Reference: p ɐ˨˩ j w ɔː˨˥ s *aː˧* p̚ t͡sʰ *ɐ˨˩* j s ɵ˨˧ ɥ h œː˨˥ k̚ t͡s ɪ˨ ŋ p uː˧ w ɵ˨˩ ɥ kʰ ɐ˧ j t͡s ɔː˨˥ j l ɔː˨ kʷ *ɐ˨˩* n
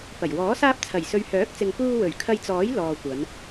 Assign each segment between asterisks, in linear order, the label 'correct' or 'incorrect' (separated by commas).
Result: correct, correct, incorrect